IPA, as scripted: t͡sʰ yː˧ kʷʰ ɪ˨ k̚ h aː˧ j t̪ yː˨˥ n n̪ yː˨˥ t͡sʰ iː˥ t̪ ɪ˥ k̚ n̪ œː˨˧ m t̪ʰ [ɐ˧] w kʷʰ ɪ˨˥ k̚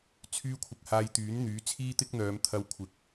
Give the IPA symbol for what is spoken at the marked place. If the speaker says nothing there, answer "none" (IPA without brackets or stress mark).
ɐ˧